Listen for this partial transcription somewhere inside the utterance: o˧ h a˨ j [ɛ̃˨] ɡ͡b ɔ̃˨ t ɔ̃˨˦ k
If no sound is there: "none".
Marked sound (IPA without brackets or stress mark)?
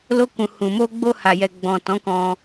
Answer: ɛ˨